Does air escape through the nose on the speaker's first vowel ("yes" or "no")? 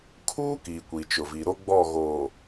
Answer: no